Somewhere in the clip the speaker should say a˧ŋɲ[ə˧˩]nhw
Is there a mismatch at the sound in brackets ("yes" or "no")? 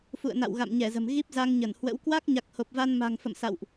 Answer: no